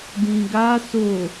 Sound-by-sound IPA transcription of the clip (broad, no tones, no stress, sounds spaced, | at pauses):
d ĩ ɡ a s o